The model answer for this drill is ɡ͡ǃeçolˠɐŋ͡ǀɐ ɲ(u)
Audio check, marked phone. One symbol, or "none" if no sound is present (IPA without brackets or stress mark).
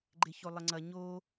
o